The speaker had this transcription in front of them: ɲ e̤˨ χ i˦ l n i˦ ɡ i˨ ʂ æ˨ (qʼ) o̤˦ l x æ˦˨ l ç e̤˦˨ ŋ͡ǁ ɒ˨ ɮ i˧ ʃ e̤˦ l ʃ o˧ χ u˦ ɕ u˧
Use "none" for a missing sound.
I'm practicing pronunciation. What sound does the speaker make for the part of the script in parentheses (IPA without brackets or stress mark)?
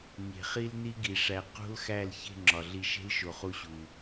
q